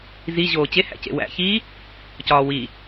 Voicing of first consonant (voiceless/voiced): voiced